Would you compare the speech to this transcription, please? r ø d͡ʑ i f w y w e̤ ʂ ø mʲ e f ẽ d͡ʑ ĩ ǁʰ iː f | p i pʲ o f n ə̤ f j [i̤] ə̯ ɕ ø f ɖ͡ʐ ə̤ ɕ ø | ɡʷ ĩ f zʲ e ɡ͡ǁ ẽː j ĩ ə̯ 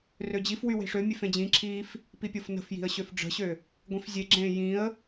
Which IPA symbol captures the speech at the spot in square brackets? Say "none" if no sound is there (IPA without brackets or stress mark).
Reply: i̤